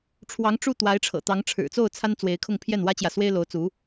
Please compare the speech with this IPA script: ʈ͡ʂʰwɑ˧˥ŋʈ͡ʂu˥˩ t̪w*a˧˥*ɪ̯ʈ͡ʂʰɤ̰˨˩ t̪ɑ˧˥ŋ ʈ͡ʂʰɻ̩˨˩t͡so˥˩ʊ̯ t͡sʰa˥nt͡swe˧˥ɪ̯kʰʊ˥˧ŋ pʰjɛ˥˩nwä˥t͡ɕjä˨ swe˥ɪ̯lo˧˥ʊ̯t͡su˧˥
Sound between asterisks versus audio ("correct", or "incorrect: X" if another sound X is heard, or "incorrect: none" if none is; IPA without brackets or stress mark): correct